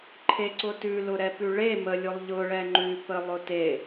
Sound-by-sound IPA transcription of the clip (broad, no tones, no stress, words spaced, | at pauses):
ǃʰeǀʊtʉlʊ ɾɛpʉɭe məlʲʊlˠ ʎʊɭɛ ŋ͡ǃʉpə lˠʊte